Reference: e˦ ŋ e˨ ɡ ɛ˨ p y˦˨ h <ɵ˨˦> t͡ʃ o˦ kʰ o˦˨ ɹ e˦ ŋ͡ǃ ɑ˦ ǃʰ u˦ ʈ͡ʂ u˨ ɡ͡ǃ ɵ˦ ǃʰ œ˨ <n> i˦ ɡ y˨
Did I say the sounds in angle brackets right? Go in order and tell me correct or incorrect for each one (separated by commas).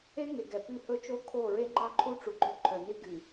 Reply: incorrect, correct